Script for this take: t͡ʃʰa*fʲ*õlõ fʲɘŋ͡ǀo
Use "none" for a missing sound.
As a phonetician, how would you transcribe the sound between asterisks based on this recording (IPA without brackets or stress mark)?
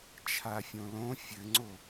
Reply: fʲ